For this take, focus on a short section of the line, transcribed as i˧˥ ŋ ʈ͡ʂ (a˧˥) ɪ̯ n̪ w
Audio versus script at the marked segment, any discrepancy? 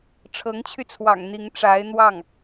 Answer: no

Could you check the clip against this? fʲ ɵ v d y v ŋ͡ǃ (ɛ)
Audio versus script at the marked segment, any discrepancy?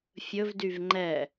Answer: no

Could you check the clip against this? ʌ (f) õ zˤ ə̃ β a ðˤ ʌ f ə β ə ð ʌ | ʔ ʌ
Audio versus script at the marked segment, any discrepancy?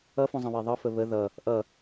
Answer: no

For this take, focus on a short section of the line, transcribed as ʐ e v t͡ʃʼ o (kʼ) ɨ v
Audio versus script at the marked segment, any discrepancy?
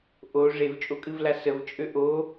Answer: no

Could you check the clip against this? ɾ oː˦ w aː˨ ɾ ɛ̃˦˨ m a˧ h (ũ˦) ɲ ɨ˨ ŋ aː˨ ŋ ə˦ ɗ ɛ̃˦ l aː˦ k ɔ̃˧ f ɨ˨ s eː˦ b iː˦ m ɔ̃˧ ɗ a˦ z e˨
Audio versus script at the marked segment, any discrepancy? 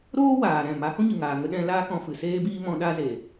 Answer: no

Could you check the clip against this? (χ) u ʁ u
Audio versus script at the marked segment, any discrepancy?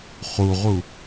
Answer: no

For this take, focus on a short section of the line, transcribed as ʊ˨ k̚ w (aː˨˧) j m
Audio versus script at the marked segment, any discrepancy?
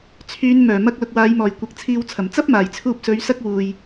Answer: no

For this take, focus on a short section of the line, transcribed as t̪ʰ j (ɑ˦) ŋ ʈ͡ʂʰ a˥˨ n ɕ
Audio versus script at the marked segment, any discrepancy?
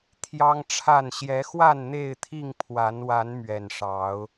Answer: no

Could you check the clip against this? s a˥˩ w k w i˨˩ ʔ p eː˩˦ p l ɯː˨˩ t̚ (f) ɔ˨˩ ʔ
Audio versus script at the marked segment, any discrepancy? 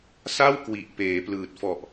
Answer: no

